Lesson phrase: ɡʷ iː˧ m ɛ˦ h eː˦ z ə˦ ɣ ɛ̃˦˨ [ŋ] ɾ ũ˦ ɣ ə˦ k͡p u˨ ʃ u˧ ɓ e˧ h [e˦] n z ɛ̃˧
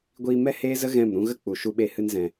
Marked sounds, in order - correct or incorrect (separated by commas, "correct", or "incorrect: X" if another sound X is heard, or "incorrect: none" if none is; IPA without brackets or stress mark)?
incorrect: m, incorrect: ɨ˦